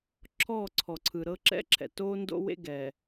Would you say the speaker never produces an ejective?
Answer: yes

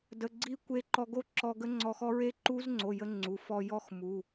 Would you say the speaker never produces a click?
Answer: no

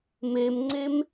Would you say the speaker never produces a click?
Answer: no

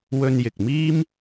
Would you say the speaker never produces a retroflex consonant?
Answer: yes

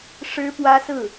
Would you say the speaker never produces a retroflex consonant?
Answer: no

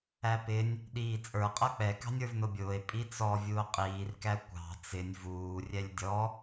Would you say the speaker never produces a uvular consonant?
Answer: no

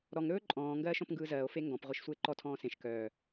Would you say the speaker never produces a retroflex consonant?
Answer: yes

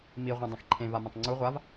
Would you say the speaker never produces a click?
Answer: no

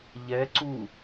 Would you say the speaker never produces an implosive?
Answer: yes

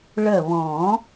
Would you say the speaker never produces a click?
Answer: yes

